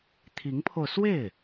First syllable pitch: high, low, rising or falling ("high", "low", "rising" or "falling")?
rising